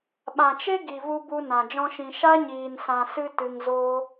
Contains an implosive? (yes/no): yes